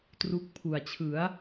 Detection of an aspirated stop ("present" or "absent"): present